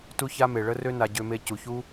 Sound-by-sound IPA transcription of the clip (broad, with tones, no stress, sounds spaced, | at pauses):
t u˧ ç a˧ m e˨ ɭ ə˧ r ø˧ n a˨ ɟ ø˨ m e˨ c u˨ ç u˧